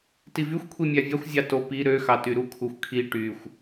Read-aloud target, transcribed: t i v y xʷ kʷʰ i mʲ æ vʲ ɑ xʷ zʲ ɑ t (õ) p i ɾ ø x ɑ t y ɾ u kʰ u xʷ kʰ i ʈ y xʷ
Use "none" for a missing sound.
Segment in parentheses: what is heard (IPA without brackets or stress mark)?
o